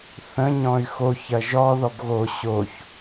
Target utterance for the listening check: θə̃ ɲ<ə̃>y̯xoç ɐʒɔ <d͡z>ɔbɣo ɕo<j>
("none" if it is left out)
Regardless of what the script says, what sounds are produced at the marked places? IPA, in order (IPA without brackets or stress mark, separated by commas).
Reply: ɔ̃, ð, ç